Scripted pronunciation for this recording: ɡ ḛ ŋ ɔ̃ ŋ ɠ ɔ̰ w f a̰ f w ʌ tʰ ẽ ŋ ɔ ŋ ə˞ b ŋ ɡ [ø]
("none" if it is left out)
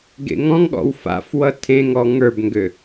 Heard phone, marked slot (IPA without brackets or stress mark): ø